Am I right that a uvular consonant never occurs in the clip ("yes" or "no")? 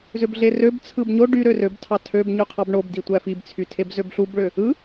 no